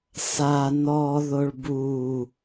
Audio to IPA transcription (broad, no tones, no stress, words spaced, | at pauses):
sa nɔ ðoɭbu